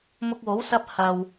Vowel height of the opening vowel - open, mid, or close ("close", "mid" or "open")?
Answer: close